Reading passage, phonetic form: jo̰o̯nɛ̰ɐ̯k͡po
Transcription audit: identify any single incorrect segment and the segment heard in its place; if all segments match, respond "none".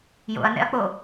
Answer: o̯ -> ɐ̯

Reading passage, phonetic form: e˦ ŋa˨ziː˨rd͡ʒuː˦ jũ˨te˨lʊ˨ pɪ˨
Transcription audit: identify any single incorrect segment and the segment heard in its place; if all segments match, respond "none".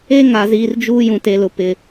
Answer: none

